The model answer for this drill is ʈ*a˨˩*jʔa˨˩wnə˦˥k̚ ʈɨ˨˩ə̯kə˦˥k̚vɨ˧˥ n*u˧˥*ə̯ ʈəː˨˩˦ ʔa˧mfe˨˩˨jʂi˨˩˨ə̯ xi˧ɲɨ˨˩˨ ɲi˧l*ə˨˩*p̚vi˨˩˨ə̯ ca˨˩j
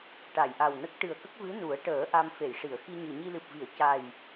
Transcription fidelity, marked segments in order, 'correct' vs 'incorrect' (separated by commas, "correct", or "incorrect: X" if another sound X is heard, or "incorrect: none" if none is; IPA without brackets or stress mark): incorrect: a˨˩˨, incorrect: u˨˩˦, incorrect: ɨ˨˩